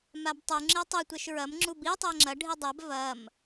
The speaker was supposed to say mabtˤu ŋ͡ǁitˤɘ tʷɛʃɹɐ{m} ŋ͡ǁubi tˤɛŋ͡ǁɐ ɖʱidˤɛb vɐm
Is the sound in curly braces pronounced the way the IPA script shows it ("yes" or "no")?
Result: yes